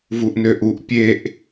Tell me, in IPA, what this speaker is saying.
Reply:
vuʔnøʔuʔ pʲeʔ

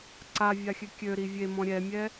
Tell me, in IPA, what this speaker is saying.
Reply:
ǀavʲaxʲø kʲøɾi vʲemɔ̃ ɾʲɛmʲɛ

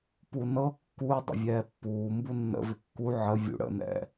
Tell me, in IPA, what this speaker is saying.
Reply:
punɤ kːu dˤə̰vʲɛːpːuː mbunːə̰ vɪkːu ʕə vʲṵɽə̰ nɛ̰

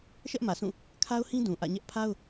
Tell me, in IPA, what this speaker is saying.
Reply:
ʃɛ˦ʔmä˨sʰũ˦˨ | kʰa˦ʊ̯hĩ˦ dũ˨ʔä̰˦˨ ɲɛ˦ʔ pʰa˦ʊ̯

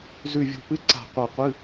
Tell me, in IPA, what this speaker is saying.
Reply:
zʉ˧˩vʲo̤˧˩pɨ˧˥˧ ǀa̤˧˩ qʷɐ˧˩qʷɨ˧˥˧

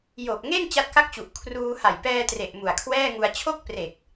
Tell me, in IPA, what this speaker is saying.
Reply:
jo˨˩k̚ŋe˥˩n t͡ɕa˦˥t̚ka˥˩k̚t͡ɕu˨˩ʔ kʰruː˧ ha˨˩jpɛː˧tre˨˩ʔ mu˨˩a̯kʰwɛː˥˩ŋu˧a̯ t͡ɕʰo˥˩k̚pre˨˩k̚

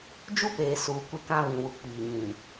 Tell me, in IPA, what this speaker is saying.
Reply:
d͡ʒu˦peː˨ suː˨kʷɪ˦˨kã˦ βĩ˨ wu˨ k͡piː˨ɲĩ˨

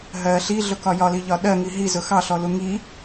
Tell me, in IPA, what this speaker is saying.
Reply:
ɦɜ ɬiɮʊkɒ jɒliʎɒ ɗɜŋi ɦizʊ xɑɬɔlu ŋi

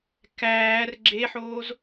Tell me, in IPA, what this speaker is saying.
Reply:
kæːr ɡ͡ǁeħoːz

